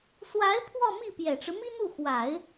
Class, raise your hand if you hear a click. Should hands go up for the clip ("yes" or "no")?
no